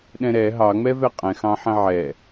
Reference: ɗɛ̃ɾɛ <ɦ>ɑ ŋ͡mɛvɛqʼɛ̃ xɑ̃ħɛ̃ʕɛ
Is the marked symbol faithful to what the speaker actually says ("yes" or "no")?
yes